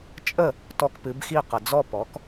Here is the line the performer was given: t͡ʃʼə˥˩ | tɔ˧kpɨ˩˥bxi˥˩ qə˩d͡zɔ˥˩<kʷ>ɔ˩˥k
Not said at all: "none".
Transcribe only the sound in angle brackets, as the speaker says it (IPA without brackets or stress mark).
p